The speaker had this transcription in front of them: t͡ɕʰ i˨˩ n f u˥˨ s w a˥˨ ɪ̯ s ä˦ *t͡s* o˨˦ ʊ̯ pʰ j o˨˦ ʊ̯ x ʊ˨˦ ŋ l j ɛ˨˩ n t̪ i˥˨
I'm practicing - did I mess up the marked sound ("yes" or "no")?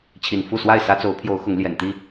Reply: no